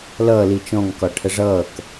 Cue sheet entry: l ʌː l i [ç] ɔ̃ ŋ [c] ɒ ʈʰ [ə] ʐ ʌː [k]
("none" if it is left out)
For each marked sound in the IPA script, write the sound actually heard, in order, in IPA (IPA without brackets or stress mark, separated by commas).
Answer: t͡ʃ, k, ə, k